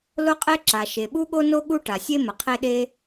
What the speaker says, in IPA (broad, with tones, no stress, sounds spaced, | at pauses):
l o˥ qʼ e˥ ǁ a˩ ʃ e˩ ɓ u˥ ɠ o˥ n o˥ ɠ u˥ ʈ a˩ sʲ e˥ m ə˩ qʰ e˥ ɗ e˥